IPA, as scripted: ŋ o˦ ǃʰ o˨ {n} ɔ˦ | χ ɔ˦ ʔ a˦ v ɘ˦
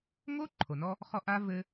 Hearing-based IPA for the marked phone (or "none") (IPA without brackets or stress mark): n